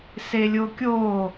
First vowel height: mid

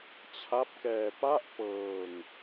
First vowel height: low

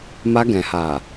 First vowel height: low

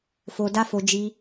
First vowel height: mid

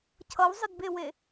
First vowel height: mid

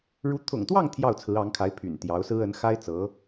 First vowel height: high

